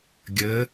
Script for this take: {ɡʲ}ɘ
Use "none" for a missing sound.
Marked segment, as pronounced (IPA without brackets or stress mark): ɡʲ